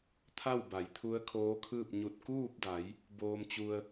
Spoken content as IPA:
t̪ʰ a˥˨ w b a˩˧ j t̪ʰ u˧˥ ə̯ kʰ oː˧˥ kʰ ɯː˥˨ p̚ ɲ u˧˩ t̚ k uː˥˨ p̚ d a˩˧ j | b oː˧ m t͡ɕ u˧ ə̯

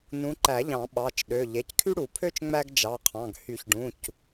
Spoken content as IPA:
n ũ˨˦ ǃ æ˨˩˦ ʎ ɑ̃˨˩˦ ɓ ɑ˩˧˩ t͡ʃ ɗ ø˩˧˩ ʎ e˩˧˩ c kʰ y˥ ɽ u˨˩˦ pʰ ø˥ t͡ʃ ŋ͡m æ˥ ɡ d͡ʒ ɑ˩˧˩ qʰ ɑ̃˩˧˩ ɡ h y˨˩˦ ç ɖ ũ˩˧˩ c

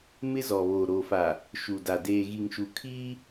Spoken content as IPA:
m ɪ˦ z ɔ˨ β oː˨ ɾ oː˨ f a˨ | ʃ u˨ d a˨ d eː˨ ɣ i˨ ŋ ʃ u˨ kʰ iː˦

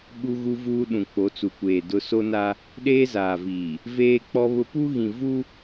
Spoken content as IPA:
ɓ u˦ ɣ u˦ v uː˦ ɗ ũ˨ k͡p o˨˦ t͡s u˨ kʷ eː˨ d ʊ˦ s o˦ n a˦ | ɗ eː˦ z aː˨ v iː˨ | v eː˦ k͡p ɔ˦ β ʊ˦ p u˦ ɣ ĩ˨ v u˦

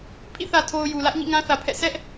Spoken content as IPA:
pʰ ḭ˦˨ θ ä˨ tʰ o˨ ʊ̯ j u˨ l ä˦ ʔ ɲ ḭ˦˨ ŋ ã˦ θ ä˨ pʰ ɛ̰˦˨ sʰ ɛ˦ ʔ

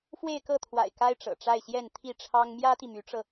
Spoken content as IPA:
f w e˥˧ ɪ̯ k ɤ˥˩ t̪ʰ w a̰˨˩ ɪ̯ k a˥ ɪ̯ ʈ͡ʂ ɤ̰˨˩ ʈ͡ʂ a˥˧ ɪ̯ ɕ j ɛ˥˧ n t̪ʰ i˥˩ ʈ͡ʂʰ ɑ˥ ŋ m j ä˥ t̪ i˨ m y˧˥ ʈ͡ʂ ɤ˧

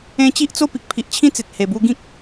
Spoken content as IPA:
ẽ˧ t͡ɕ i˦ ʔ t͡s o˥˧ p i˨ k̚ pʰ i˨ ʔ t͡ɕʰ ĩ˦ t͡s e˨ t̚ h e˨˩ b u˧ ɡ ĩ˦ k̚

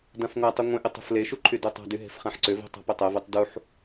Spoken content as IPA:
d ã f ŋʷ a tˤ e ŋʷ ɛ̃ ʔ ɪ tˤ e̤ f l e ʃ u ǃʰ y d y tˤ a̤ d y ɦ e̤ f χ ã ħ ǀ ʏ v e̤ tˤ a̤ p ɪ tˤ ɛ v ɛ tˤ d u ħ

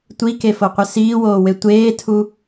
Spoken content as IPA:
tʷ i k e f o qʷ ɘ s iː w oː w e tʷ eː tʰ u

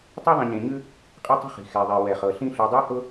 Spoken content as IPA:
tˤ i˥ ðˤ ĩ˨ ɲ ẽ˨ ɲ ʉ˥ | qʼ ɛ˦ tˤ ə̤˦ χ i̤˩ x ɛ˩ ðˤ e˩ w ɛ˩ χ ɤ˩ ɬ ĩ˦ ɬ y˨ dˤ ɤ˥ h ʊ˥

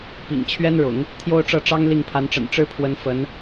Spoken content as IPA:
p ḭ˨˩ ŋ t͡ɕʰ ɥ ɛ˥ n ɻ ʊ̰˨˩˦ ŋ | t̪ʰ j o˥ ʊ̯ ʈ͡ʂ ɤ˥˩ ʈ͡ʂ ɑ˥ ŋ l i˥˩ ŋ pʰ a˧˥ n ʈ͡ʂ ə̰˨˩ n ʈ͡ʂ ɻ̩˥ pʰ w ə˧˥ n f ə˧˥ n

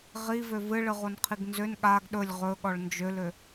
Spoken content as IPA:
ʁ i v ø v ɨ ɭ ɨ ʁ o n qʰ i ɡ n z ø n ɠ a ɡ ɗ ɵ lʲ ʁ ɵ ɠ ɔ ɭ n d͡ʒ ø l ø

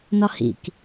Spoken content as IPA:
n ɒ h ḭ k

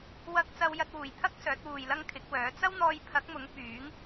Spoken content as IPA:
w ɐ˧ k̚ t͡s ɐ˧ w j ɐ˧ t̚ w uː˨˩ j t̪ʰ ɐ˥ k̚ s œː˨˥ t̚ w uː˨ j l ɐ˥ ŋ kʰ ɪ˨˥ k̚ w œː˨˥ t͡s ɐ˥ w n̪ ɔː˧ j pʰ ɐ˨˥ k̚ m ʊ˨˥ ŋ p yː˨˥ ŋ

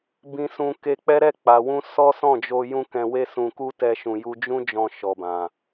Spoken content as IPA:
b ĩ˧ s ũ˧ k e˧ k͡p ɛ˦ ɾ ɛ˦˨ k͡p a˨ w ũ˧ s ɔ˦ s ɔ̃˦˨ d͡ʒ o˧ j ũ˦ k ɛ̃˧ w e˦ s ũ˧ k u˦ t ɛ˦ ʃ ũ˧ j u˦ d͡ʒ ũ˦ d͡ʒ ɔ̃˧ ʃ ɔ˨ b ã˨

